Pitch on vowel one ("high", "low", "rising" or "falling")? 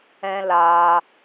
high